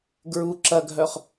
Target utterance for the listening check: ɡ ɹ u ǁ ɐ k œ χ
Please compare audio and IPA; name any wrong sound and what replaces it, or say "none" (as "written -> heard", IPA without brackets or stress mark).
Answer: k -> ɡʱ